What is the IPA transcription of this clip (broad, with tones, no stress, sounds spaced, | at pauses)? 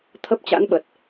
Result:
t̪ʰ ə˦˥ p̚ t͡ɕ a̰˧˥ n ɓ ə˨˩ t̚